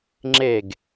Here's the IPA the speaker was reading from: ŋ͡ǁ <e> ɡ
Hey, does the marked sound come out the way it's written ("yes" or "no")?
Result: yes